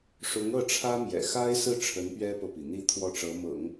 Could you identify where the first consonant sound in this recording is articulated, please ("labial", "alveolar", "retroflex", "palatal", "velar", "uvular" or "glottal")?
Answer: retroflex